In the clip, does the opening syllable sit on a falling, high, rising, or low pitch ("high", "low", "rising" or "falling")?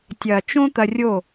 low